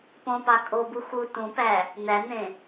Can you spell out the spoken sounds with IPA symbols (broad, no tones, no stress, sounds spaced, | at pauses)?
p õ p ɑ kʼ o b u x u t ũ p æ | n̪ æ n̪ ẽ